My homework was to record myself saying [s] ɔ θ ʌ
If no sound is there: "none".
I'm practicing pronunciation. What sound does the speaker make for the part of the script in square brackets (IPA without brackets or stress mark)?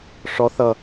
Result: ʂ